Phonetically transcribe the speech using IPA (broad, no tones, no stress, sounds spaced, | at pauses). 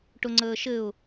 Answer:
ʈ ʊ ŋ͡ǀ əː ʃ ɘ ʊ̯